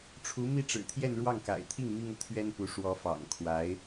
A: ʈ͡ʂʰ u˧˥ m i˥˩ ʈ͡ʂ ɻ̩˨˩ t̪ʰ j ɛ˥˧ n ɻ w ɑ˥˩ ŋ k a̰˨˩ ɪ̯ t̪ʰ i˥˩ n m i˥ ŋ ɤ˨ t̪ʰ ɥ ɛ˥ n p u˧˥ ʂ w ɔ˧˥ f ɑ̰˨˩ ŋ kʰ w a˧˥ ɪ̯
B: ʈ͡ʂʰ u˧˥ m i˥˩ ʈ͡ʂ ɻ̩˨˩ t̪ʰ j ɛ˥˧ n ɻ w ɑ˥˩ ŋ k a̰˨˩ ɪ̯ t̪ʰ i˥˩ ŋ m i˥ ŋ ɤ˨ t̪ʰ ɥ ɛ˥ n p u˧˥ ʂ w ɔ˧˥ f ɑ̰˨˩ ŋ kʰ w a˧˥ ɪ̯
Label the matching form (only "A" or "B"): B